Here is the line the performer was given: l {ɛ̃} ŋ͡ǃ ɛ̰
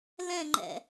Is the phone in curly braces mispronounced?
no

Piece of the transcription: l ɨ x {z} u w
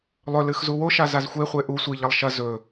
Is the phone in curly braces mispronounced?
no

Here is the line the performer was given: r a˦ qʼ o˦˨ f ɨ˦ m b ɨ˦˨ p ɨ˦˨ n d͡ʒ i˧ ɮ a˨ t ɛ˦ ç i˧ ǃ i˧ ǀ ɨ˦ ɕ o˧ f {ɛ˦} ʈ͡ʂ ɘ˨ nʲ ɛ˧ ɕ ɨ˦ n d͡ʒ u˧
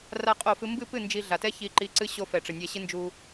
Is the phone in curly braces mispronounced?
yes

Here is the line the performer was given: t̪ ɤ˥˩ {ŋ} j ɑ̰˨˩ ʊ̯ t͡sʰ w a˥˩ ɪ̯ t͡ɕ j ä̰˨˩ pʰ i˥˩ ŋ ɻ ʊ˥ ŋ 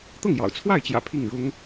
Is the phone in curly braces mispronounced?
no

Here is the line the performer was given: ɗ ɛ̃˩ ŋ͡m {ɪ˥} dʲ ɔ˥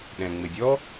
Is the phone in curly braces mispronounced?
yes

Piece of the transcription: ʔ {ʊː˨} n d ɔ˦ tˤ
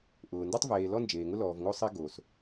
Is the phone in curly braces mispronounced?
no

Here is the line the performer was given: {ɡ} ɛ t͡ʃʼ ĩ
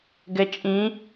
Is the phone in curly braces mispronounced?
no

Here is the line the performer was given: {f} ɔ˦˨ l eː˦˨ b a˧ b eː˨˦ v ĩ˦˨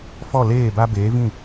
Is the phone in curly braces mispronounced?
no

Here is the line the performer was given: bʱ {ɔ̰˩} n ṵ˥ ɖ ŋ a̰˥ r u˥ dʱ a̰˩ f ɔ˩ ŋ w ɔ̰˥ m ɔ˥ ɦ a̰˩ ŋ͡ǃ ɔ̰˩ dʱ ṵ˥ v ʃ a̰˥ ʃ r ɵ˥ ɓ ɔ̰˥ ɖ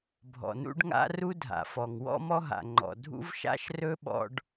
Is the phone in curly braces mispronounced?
no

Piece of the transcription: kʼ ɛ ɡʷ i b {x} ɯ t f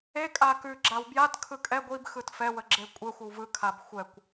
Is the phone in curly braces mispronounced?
no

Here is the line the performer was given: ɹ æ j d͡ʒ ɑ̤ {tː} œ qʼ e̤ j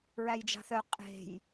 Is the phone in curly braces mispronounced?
yes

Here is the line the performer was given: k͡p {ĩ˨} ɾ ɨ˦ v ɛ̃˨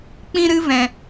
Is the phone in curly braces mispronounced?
yes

